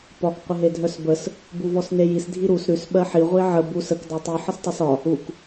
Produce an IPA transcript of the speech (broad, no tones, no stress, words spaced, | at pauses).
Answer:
pɒk qʷəɦedʱœsbəs | buvɔsnejis dʱiɾus ɾʉs ɓɜħi ʁʷiʕə bus ək dɔtˤʉ ħəstˤesɒ | uk